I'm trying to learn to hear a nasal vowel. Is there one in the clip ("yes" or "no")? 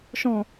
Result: yes